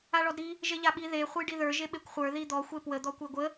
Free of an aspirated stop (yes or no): yes